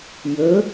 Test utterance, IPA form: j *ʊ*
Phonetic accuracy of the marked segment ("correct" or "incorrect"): incorrect